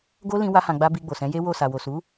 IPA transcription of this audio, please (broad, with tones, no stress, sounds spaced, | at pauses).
ɡ o˦ l ĩ˧ w a˦ h ã˧ ɡ͡b a˦ b i˧ ɡ͡b o˨ s ɛ̃˨˦ j e˦ w o˦˨ s a˨ w o˨ s u˨˦